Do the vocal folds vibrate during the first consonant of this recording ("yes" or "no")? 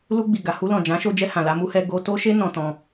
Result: yes